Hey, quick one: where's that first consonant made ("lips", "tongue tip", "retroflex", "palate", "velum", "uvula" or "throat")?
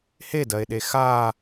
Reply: throat